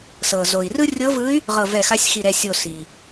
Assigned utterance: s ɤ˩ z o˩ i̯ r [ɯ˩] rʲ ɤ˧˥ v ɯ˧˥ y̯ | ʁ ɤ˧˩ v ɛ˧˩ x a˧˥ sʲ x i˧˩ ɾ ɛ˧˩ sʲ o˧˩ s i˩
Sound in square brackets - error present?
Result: yes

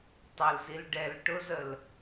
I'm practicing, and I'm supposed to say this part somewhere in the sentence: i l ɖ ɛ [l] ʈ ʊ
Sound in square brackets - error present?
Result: no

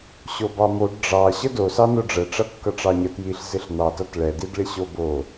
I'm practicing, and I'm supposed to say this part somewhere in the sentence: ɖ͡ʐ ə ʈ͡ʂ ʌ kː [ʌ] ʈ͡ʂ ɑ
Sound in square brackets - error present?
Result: no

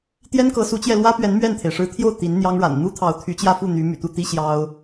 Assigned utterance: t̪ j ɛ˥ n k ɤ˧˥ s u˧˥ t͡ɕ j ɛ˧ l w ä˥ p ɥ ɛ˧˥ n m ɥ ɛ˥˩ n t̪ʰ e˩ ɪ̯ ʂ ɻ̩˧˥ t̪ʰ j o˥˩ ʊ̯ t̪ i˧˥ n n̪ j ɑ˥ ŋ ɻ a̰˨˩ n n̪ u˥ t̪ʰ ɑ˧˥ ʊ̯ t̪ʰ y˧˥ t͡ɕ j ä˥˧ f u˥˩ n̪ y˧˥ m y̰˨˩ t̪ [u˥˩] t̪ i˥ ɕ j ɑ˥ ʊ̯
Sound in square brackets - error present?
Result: no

